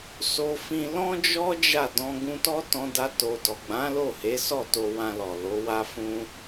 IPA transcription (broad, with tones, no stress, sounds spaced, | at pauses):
s o˧ f ĩ˧ l ɔ̃˦ d͡ʒ ɔ˦ d͡ʒ a˦˨ d ɔ̃˧ ɡ ũ˧ t ɔ˦ t ɔ̃˧ d a˧ t o˨ d ɔ˨ ɡ͡b ã˨˦ l o˦˨ h e˨˦ s ɔ˦˨ t o˧ w ã˧ l ɔ˨ l o˨˦ w a˦ f ũ˦